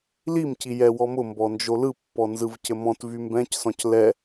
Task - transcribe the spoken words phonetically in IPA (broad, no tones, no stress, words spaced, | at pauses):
limci jɛwɔmʊ mbɔnd͡ʒolɯpːɔ nzɯvcɘmɔ̃t vymbɛ̃csɔ̃c lɛ